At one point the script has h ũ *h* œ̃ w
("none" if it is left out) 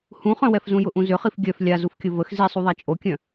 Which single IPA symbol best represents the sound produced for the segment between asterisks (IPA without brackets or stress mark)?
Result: χ